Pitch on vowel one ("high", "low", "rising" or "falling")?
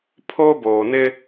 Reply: high